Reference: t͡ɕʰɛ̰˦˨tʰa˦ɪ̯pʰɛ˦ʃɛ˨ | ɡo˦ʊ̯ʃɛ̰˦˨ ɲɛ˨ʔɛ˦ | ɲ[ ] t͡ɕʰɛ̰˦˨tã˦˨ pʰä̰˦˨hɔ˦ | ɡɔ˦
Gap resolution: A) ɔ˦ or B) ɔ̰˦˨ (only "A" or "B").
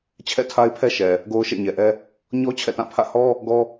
A